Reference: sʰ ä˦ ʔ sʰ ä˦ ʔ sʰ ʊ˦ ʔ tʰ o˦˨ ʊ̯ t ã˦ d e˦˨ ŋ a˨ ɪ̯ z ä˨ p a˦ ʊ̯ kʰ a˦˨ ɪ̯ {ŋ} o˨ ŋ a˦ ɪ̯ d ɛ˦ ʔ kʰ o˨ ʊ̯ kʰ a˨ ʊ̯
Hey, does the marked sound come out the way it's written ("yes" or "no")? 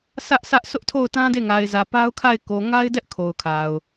no